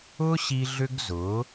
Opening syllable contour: high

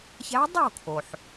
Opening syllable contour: rising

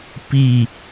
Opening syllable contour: falling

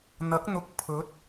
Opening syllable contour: rising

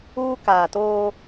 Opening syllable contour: high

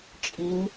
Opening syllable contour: rising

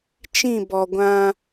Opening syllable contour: falling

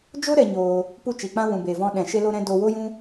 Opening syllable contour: high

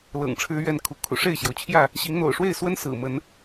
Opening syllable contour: low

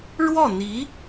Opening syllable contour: falling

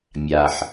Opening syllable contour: low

